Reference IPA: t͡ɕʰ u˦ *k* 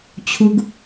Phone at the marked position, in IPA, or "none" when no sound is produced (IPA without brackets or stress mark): ɡ